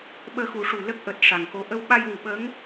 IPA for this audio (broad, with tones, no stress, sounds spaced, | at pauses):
ɓ əː˧ x u˨˩˦ ʂ u˨˩ l ə˦˥ k̚ ʔ əː˨˩ t̚ ʂ a˨˩ ŋ k o˧˥ ʔ ə˧ w ɓ a˧ j w u˨˩˨ ɓ ə˧˥ ŋ